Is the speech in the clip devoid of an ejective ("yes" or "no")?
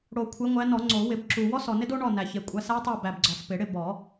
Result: no